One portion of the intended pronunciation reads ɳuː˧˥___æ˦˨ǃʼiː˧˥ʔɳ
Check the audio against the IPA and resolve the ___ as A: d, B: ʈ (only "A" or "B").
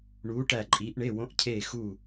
B